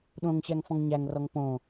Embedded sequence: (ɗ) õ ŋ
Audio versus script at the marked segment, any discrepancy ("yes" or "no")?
no